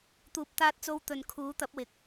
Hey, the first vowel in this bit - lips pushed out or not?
yes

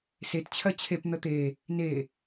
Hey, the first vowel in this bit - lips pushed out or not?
no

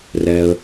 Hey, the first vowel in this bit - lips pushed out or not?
no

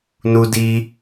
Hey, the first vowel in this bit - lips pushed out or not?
yes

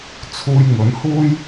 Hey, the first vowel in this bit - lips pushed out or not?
yes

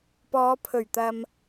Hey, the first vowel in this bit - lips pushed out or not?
yes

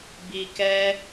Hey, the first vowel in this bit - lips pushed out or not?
no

